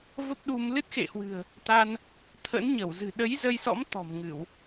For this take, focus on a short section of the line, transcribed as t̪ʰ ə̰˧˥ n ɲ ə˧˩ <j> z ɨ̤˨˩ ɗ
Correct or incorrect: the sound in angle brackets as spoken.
incorrect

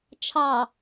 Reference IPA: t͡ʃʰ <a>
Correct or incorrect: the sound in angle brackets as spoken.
incorrect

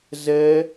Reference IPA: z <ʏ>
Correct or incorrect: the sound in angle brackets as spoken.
incorrect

